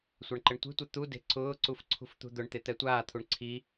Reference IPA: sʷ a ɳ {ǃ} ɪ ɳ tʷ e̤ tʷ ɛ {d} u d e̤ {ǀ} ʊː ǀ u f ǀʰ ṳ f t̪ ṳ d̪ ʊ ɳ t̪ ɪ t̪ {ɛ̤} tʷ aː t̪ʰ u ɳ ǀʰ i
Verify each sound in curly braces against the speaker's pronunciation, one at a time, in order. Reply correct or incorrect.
correct, incorrect, correct, incorrect

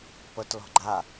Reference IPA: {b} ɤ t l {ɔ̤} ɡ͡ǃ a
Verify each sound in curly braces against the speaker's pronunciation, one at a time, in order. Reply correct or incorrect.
incorrect, correct

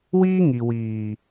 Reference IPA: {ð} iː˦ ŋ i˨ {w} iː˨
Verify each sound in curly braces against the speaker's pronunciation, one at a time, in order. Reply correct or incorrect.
incorrect, correct

